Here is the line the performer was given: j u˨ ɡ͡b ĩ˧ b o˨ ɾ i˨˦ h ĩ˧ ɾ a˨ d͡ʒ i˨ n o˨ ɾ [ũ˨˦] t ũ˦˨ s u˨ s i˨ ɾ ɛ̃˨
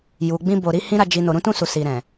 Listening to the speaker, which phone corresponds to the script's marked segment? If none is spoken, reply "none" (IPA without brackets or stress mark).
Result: ũ˨˦